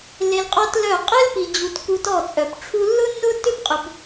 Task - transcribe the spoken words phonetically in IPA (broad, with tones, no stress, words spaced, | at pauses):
le˧lqʼɔ˦tlœ˦˨ qʼe˦lpi˨ d͡ʑu˨t ku˧tɔ˦˨t͡sʼœ˨p ʈ͡ʂʰu˧lːʊ˦nːʊ˦ tʏ˦pqʼʏ˨p